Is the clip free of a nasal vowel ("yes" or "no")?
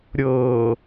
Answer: yes